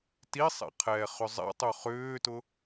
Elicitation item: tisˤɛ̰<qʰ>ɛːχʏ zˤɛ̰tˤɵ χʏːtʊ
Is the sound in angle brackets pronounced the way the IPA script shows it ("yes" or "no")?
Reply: yes